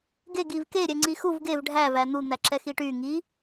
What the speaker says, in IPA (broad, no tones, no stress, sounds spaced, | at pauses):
ɡ e ɡ i v k e ɾʲ ɛ ŋ͡ǀ i x u v ɡ e v ɖʱ æ v æ n̪ u n̪ æ ǁ ɛ x i ʈ y ŋ i